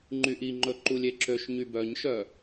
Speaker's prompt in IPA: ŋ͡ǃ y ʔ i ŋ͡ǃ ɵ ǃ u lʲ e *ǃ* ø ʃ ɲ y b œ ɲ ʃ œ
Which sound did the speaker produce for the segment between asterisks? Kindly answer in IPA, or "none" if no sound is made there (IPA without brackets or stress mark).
ǁ